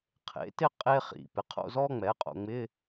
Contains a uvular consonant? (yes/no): yes